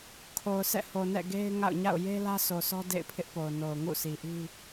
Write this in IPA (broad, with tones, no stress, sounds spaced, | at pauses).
kʰ o˨ ʊ̯ s ɛ̰˦˨ h o˨ n ɛ̰˦˨ ɡ e˦ ɪ̯ ŋ a̰˦˨ ʊ̯ ɲ a̰˦˨ ʊ̯ j e˦ l ä˦ sʰ o˨ sʰ ɔ˦ d ḛ˦˨ ɪ̯ pʰ ɪ˦ ʔ p o˨ ʊ̯ n o˨ ʊ̯ ŋ ṵ˦˨ s i˨ ʔ i˦